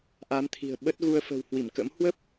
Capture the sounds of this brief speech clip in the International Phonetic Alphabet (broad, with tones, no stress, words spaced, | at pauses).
ʔa˨˦mt̪ʰi̤˨˩ə̯ ɓə˦˥t̚ɣu˧ə̯ fə̤˨˩whwi˧˩mkə̰˧˥m hwə˦˥p̚